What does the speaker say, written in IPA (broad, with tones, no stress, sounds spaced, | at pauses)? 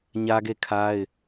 ɲ ä˦ ɡ e˦˨ kʰ a˦ ɪ̯